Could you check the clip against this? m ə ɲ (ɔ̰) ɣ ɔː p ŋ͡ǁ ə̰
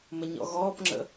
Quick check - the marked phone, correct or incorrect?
correct